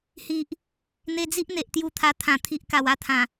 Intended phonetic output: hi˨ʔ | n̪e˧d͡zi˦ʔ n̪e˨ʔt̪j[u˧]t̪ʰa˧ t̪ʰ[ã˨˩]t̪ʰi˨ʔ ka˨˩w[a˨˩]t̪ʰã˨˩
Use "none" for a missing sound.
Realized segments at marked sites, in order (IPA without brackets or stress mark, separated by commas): u˧, ã˨˩, a˥˧